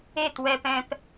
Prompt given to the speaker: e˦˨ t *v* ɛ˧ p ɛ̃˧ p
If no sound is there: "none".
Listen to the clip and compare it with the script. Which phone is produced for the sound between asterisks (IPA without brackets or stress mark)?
w